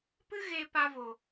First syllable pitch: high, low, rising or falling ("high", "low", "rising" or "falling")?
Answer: high